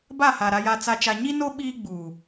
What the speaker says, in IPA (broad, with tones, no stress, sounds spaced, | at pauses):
b a˦˨ h a˨ ɾ a˨ j a˨ t͡s a˨ t͡ʃ a˨ ɲ i˦ n o˦ ɓ iː˦ ɡ͡b uː˨